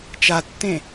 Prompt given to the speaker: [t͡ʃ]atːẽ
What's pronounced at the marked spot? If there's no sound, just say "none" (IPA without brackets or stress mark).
t͡ʃ